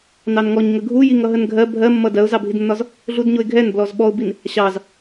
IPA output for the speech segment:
n ɑ n ŋ ɔ ɲ ŋ ə ɡʱ u j i ŋ ʌ ɦ ə n ɡʱ ɜ bʱ ɜ mː ʌ d ɜ ʊ̯ z ɑ bʱ i d nː ɒ z | ɮ u d ɲ ʊ ɪ̯ ɡʱ ɛ n b l ɔ z ɓ ɔ ʊ̯ b i n | ɕ ɑ z

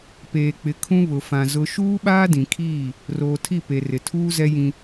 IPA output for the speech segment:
p eː˨ k͡p ɪ˨ kʰ ũ˦ β ʊ˨ f ã˨ z ʊ˦ ʃ uː˦ ɓ aː˦ d ĩ˨ kʰ iː˦˨ | r oː˨ tʰ i˦˨ p e˨ r ɪ˨ tʰ uː˦ z ɛ˦ j ĩ˦

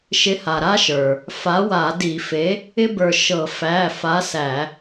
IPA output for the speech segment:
ʃ ɪ˨˥ h a˩ ɾ a˦ ʃ ə˞˩ | f a˨˥ w a˧˩˧ d i˧˩˧ f e˨˥ | ɪ˦ b ə˞˧˩ ʃ ɤ˧˩˧ f æ˩˧˩ f a˨˥ s æ˧˩˧

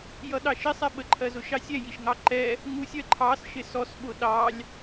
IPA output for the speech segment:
j ʌ ɗ ɑ ʃ ɪ sˤ ɛ ɓ ə ǃʰ ɜ z ʊ ʃ ɑ sʲ ɛ j i ʃ ŋ ɑ ǃ ɛ | ŋ u sʲ ɜ ǃʰ ɑ s ʃ ɪ s ɔ s ɓ ʊ ɗ ɑ lʲ

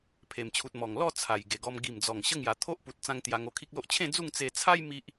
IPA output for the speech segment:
pʰ e˨˩ m t͡ɕʰ u˨ t̚ m ɔ˨˩ ŋ l ɔ˥˧ t͡sʰ a˨˩ j ɡ e˨˩ ɡ ɔ˧ m ɡ i˨˩ m d͡z ɔ˨˩ ŋ ɕ ə˦ ŋ j a˨˩ t̪ʰ o˦ ʔ p u˨ t̚ t͡s ã˦ ŋ t̪ j a˧ ŋ o˧ kʰ i˦ k̚ l o˦ ʔ t͡ɕʰ ẽ˥˧ d͡z u˥˧ ŋ t͡s e˧ t͡sʰ a˦ j m i˦ ʔ

